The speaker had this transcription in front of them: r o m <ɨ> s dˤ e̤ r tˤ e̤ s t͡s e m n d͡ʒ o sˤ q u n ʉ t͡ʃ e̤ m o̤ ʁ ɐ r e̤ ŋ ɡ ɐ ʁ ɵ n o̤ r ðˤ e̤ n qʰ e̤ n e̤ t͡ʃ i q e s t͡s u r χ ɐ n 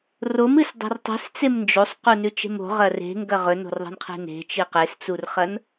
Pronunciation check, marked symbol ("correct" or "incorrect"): correct